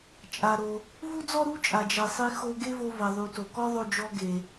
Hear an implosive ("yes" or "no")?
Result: no